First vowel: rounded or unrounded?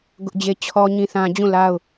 rounded